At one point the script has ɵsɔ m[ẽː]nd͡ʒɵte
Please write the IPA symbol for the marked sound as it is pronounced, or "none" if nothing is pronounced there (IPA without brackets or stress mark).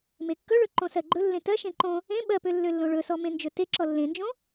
ẽ